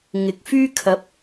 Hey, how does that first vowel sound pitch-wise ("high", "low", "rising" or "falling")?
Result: rising